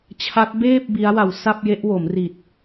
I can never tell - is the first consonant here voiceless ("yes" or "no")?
yes